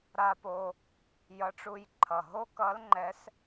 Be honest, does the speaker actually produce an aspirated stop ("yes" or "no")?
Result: yes